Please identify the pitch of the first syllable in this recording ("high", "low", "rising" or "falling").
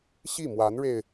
falling